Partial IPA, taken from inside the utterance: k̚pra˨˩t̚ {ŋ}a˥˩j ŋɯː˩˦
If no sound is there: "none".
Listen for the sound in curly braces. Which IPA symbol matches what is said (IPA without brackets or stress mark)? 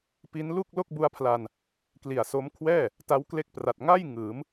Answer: ŋ